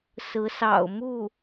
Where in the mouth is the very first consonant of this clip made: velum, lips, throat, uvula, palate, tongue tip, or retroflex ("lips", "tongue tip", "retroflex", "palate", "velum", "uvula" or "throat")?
tongue tip